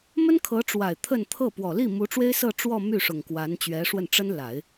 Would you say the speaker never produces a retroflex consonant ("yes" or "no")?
no